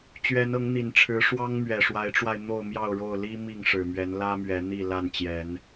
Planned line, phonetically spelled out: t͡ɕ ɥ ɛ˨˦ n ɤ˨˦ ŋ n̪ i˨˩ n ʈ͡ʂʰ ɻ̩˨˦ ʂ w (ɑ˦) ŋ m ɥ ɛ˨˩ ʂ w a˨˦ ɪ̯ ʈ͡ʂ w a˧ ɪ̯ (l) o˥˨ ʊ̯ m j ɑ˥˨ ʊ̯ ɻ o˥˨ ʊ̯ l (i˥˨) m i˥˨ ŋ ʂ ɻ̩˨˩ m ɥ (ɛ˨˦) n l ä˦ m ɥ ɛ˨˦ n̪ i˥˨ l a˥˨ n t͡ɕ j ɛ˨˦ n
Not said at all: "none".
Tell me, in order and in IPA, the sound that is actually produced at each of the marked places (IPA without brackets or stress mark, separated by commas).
ɑ˦, n̪, i˦, ɛ˨˦